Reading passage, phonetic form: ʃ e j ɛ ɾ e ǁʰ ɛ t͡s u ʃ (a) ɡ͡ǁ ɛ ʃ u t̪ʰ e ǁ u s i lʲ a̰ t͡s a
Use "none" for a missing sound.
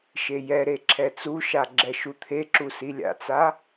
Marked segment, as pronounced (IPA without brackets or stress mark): a